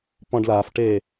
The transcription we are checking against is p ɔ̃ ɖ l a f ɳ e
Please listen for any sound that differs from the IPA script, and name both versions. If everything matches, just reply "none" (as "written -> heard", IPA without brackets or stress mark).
ɳ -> ʈ